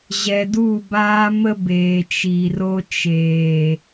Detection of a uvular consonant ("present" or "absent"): absent